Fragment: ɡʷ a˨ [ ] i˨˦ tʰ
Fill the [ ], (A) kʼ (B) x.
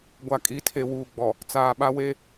A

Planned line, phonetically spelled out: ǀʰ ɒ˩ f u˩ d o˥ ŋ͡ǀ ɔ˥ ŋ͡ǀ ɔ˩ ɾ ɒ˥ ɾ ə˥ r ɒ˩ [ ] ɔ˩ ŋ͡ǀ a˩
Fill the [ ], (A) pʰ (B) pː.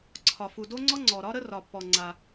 B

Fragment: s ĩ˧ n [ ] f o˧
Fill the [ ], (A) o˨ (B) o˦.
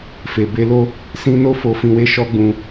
B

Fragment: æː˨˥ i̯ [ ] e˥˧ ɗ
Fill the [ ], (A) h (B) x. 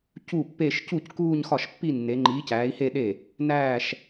A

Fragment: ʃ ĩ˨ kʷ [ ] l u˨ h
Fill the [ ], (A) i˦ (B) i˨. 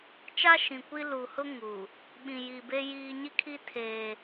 A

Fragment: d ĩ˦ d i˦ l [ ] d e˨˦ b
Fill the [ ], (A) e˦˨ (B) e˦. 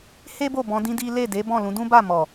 A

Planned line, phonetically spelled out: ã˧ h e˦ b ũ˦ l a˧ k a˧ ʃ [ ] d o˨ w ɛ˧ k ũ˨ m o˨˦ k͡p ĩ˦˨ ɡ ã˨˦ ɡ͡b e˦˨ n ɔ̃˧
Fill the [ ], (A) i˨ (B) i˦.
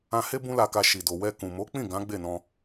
A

